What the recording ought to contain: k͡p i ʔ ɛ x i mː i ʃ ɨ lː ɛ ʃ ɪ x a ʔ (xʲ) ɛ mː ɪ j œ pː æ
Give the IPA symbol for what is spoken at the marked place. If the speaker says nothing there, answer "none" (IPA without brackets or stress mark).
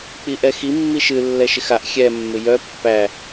xʲ